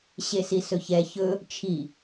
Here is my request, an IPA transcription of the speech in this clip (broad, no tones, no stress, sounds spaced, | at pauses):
ɕ e s i s ɵ ç ɛ ç ɵ | t͡ʃʰ i